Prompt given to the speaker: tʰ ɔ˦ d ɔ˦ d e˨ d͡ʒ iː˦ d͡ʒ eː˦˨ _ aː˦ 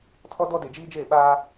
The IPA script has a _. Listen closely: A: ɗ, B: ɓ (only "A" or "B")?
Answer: B